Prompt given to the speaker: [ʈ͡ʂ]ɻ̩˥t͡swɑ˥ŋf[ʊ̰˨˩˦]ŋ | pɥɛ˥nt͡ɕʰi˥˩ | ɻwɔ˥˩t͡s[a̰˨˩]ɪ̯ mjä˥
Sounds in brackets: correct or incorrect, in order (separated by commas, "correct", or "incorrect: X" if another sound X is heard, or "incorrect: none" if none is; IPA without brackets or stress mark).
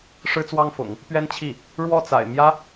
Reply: incorrect: ʂ, correct, correct